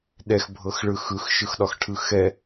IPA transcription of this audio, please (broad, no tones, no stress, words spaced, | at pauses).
ɗɛxbʱɤxɭɯ xɯxʃɯxɗɒxʈʰɯ xɛ